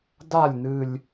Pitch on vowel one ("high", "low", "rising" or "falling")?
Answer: falling